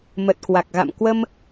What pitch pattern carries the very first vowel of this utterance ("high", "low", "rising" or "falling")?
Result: low